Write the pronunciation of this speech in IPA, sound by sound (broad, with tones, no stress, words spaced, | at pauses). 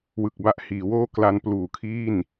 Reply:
wɯ˨˩k̚ba˦˥ʔhiː˩˦woː˥˩ kla˧n pluː˨˩kʰiː˥˩n